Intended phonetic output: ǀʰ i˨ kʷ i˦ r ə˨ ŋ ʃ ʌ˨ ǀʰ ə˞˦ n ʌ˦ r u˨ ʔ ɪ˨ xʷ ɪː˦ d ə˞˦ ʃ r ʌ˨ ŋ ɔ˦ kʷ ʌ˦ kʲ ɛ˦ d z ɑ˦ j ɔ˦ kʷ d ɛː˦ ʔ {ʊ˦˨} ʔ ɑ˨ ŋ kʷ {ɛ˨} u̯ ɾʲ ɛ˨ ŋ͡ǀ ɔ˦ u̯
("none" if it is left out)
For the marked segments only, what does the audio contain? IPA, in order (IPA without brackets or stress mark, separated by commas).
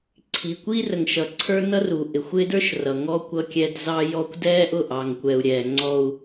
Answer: ʊ˦˨, ɛ˨